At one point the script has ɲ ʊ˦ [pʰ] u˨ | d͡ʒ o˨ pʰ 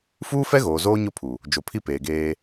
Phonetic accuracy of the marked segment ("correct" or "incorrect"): correct